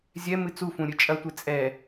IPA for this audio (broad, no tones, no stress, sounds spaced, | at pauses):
zʲ ɛ m ɨ t͡s u f ũ ɾʲ ɨ t͡ʃʼ ɐ tʷ e t͡sʼ ɛ